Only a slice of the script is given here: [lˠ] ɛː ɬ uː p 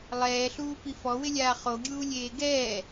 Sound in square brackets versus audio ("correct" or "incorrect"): correct